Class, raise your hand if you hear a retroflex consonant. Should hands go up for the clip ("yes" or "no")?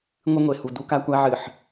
no